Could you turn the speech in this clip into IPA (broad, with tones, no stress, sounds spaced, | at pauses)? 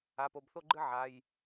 a˩˧˩ p o˩˧˩ b θ o˥˧ ɡ͡ǃ ɨ˥˧ ʕ a˩˧˩ j